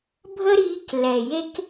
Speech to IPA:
bʱ ə˦ ɾ iː˧ k l ɛ˨ j e˦ k

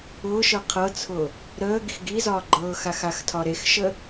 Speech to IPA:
ʊː ʃ ɤ qʰ ɤ t͡sʰ ʊ | ɾ əː ɡ i x ɡ i z ɒː ɡ͡ǃ ɤː x a x a x tʰ ɒ ɾ e x ʃ ə

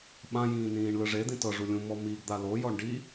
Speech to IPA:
ɓ ã j ĩː n ĩː ɳ l ɯ ʐ e d̪ ĩ t ɤ ʐ u lʲ ũ m ɔ m i ɡ d̪ a l o j ɔ ɳ ɖ i

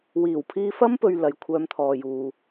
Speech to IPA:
w iː˨˩ w pʰ iː˧ f ɐ˥ m p ɵ˨ ɥ l ɐ˨ j kʷʰ œː˧ m t̪ʰ ɔː˨ j uː˨

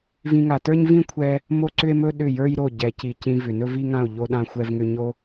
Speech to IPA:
v ĩ˧ ŋ a˨ t ə˞˦ ɲ v ĩ˦ kʷʰ ɛ˧ | m o˦ ǀ ʏ˦ e̯ m ɵ˦ ɗ ʏ˦˨ j ə˞˦ j ɾ o˦˨ ɟ ɛ˨ c i˨ c ĩ˧ v ʏ˨ n ɵ˦ v i˦ ŋ ã˦˨ o̯ ʎ o˦ ɗ ã˦ xʷ ɛ˦ v ŋ ʏ˦ ɲ o˧

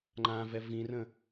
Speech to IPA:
ŋ͡ǃ ã v ɛ v ĩ r ə̃

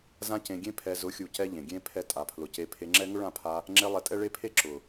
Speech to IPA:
z ã˦ c ẽ˧ ɡʲ ẽ˦ pʰ ɛ˧ z ʊ˨˦ xʲ u˨ c ɛ˧ ʎ ẽ˨ ɡʲ ẽ˦ pʰ ɛ˦ tʼ a˧ pʰ l ʊ˧ c e˧ pʰ e˧ ŋ͡ǁ ɛ˦ ŋ ʊ˦ ɭ ã˦˨ pʰ a˧ | ŋ͡ǁ e˧ lˠ ɛ˧ tʼ ɛ˦ ɭ e˦ pʰ e˦ ǁ ʊ˨

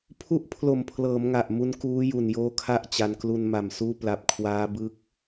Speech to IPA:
pʰ u˦˥ ʔ pʰ l o˨˩ m pʰ l ɤː˩˦ m ŋ a˨˩ ʔ m u˦˥ n k uː˦˥ j u˨˩ n j oː˧ kʰ a˦˥ ʔ t͡ɕ a˧ n k l u˧ n m a˨˩ m s uː˥˩ p l a˦˥ p̚ kʰ w aː˦˥ b ɯ˦˥ k̚

